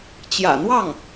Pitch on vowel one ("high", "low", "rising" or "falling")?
low